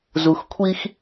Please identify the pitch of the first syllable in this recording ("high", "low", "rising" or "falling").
low